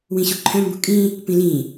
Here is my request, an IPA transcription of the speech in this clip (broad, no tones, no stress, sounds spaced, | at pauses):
w ĩ ɕ u ǃʰ œ̃ m b ṳ kʼ ĩ | p ĩ l ĩ